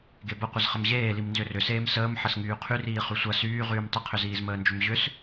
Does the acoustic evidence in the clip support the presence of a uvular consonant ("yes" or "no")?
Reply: yes